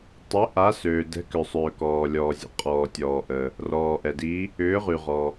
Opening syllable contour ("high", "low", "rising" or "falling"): rising